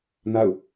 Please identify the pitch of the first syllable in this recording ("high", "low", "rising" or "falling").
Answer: falling